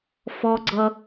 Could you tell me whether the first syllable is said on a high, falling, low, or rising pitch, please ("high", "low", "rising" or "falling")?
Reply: high